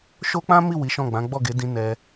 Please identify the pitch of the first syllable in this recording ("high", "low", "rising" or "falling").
high